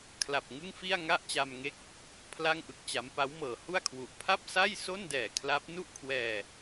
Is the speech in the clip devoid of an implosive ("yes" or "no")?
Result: yes